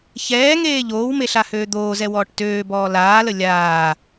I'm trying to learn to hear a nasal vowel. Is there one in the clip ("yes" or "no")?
no